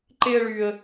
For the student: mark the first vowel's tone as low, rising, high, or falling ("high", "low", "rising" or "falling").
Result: high